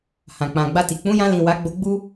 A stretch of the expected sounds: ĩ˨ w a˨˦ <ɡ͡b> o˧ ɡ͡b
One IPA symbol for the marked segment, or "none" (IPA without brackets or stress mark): ɡ͡b